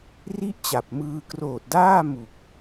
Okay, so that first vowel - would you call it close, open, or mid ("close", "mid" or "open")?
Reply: close